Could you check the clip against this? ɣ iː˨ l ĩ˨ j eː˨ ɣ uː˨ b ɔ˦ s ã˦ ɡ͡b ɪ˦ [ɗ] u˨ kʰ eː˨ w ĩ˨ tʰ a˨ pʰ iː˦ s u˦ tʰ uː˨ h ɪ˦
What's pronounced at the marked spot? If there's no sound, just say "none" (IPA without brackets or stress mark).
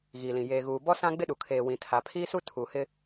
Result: ɗ